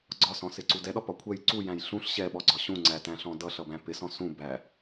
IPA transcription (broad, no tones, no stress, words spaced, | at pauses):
ɡ͡ǀɒsɔ̃sɪǀu dɛɗɒpɒ kʷʰɛj ǀujæ̃j ɬũɬ ɕɛɓɔɡ͡ǀɒ ɕũŋ͡ǀætæ̃ɬɔ̃ dʌɬʌbæ̃ pɪsɔ̃ sũbæ